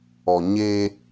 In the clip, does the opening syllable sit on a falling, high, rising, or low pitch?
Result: low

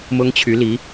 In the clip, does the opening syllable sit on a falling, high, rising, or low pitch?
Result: high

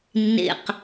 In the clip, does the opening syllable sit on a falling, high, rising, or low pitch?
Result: low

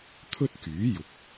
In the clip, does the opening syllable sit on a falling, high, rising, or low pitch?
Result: high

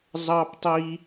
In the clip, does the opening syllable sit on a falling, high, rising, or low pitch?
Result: high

